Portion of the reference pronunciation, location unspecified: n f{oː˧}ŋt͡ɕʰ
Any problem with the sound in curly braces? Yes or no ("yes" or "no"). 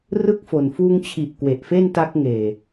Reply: yes